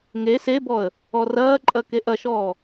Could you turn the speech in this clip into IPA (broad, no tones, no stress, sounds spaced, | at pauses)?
ŋ e s e b ɔ ə̯ | ɔ r ɐː ǃʼ ɐ k e ʔ ɐ ʃ ɔː